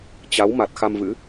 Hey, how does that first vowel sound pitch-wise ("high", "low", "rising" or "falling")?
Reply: rising